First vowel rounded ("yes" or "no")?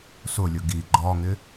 yes